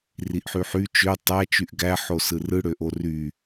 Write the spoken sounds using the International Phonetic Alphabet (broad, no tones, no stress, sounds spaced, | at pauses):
r i ʔ ħ y ħ y t͡ʃ ø tˤ æ t͡ʃ y ʔ ɡ æ ħ o s ɯ r ɯ ɽ ø ʔ o r y